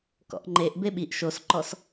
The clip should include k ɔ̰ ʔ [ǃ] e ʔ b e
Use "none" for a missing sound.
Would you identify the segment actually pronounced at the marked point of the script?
ŋ͡ǃ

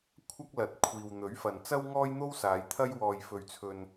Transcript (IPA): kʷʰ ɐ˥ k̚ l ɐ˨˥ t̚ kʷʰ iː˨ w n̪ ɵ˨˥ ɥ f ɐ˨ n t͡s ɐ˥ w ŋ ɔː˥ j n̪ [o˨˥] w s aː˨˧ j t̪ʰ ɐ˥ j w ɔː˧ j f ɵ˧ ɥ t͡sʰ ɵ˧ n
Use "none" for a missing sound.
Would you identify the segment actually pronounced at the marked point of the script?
o˥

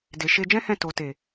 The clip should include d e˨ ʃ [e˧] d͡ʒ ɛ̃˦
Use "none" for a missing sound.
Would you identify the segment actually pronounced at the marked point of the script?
e˧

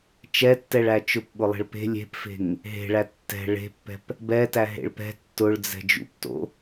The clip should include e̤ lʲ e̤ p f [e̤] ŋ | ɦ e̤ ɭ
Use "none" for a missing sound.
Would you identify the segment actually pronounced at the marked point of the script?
e̤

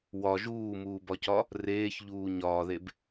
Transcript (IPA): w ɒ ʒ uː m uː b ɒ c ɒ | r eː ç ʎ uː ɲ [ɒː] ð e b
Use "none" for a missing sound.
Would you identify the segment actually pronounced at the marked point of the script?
ɒː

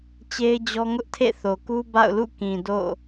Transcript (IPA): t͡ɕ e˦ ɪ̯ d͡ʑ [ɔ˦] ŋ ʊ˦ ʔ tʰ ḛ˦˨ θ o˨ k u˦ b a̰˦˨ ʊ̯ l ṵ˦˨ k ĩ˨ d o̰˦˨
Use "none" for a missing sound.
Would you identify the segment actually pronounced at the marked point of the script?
ɔ˦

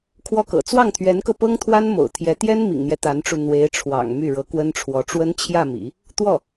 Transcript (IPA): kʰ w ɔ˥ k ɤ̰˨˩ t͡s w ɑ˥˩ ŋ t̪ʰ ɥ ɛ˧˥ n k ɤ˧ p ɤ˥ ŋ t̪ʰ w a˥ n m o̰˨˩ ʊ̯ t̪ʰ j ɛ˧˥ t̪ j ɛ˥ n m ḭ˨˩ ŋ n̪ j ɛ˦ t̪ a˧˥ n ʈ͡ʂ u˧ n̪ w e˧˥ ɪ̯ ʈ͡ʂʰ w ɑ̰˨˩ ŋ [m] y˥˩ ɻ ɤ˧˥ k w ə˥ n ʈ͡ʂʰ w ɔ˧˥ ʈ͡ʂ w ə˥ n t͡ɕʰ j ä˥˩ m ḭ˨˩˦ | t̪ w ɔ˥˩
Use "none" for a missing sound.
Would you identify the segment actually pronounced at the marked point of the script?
m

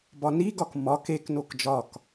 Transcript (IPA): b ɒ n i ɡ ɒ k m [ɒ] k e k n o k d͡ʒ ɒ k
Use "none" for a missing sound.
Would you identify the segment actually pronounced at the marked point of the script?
ɒ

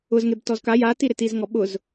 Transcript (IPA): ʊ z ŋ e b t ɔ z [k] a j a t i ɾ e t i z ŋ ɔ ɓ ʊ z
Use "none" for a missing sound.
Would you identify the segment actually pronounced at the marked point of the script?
k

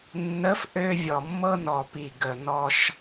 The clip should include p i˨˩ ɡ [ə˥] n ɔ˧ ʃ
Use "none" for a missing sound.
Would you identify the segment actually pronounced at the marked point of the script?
ə˨˩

